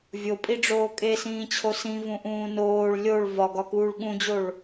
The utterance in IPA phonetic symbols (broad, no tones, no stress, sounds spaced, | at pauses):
vʲ o pʼ i ɖ͡ʐ oː kʼ e s ĩː t͡ɕʰ o s ĩ v ũ ʔ ũː n oː ɭ lʲ o ɭ v ɒ ɡ ɒ k uː ɭ ɠ ũ d͡ʑ o ɭ